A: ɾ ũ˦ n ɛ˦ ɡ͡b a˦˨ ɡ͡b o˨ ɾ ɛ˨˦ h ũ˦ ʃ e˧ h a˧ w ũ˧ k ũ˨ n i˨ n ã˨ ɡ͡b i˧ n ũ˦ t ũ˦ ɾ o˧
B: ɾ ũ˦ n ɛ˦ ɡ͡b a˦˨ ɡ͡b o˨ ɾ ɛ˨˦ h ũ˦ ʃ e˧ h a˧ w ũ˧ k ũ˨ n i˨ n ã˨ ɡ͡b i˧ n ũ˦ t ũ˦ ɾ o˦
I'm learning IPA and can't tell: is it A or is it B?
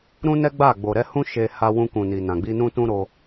A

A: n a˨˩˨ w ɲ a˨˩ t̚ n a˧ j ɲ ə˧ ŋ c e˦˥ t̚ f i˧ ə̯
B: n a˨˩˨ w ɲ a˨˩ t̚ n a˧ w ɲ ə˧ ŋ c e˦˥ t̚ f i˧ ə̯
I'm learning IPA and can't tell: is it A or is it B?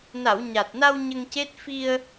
B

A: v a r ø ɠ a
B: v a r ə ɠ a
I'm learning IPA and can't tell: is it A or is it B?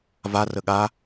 B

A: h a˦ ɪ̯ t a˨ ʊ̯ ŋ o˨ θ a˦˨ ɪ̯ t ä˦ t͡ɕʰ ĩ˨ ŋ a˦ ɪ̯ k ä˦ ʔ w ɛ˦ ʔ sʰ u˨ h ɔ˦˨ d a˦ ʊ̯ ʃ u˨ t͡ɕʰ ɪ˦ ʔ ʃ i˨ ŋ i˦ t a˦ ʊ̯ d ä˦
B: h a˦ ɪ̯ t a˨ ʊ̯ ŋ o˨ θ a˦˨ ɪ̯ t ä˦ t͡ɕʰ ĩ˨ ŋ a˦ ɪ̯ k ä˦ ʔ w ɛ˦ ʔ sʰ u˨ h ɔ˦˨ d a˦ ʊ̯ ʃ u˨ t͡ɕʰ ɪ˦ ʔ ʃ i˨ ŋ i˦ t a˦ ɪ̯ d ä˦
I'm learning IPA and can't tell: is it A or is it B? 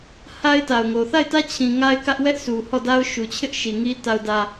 A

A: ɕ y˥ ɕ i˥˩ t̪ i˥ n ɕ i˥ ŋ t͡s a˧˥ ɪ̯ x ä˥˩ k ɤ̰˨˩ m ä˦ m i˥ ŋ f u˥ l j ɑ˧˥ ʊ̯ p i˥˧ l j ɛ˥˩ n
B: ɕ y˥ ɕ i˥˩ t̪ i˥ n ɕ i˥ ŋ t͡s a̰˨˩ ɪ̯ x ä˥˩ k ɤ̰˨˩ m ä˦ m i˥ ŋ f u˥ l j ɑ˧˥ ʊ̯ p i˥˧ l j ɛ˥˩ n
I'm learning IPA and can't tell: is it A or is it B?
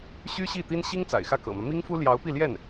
B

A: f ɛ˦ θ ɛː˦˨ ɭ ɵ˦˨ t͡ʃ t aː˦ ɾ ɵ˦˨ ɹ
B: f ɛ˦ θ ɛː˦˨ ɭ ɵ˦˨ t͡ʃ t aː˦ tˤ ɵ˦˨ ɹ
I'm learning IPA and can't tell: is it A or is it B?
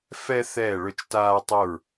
B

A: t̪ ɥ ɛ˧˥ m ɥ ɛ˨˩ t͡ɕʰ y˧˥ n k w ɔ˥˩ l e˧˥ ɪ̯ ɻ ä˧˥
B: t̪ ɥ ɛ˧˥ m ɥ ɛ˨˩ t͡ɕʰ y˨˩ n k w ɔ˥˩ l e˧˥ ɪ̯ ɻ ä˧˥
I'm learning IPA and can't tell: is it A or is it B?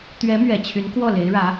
A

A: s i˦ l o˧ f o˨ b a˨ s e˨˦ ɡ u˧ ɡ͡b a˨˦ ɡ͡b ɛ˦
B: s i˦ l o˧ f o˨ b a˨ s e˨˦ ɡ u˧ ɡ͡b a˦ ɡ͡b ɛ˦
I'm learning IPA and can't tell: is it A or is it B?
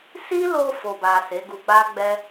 B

